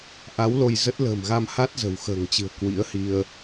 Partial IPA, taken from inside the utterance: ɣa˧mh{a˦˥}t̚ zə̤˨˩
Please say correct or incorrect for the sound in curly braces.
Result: correct